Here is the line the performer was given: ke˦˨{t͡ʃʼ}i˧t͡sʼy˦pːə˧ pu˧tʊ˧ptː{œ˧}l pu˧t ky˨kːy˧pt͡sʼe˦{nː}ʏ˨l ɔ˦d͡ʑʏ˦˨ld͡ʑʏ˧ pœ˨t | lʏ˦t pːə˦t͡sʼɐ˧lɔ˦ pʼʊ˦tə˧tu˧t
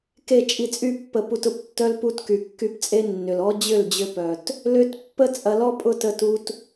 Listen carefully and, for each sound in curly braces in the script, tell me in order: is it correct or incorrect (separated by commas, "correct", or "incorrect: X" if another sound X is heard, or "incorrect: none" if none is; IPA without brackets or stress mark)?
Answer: correct, incorrect: œ˦, correct